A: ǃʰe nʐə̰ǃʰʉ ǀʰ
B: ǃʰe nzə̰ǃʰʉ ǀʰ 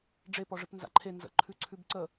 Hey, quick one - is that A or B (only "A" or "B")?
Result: B